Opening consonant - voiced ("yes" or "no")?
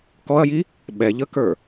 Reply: no